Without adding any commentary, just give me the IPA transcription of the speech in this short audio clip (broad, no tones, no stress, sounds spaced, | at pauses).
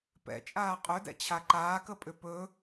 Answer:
p ɛ̰ t͡ʃʼ aː qʼ ɵ d ɛ̰ t͡ɕʰ a ǃ aː k ə pʼ ʏ p ɵ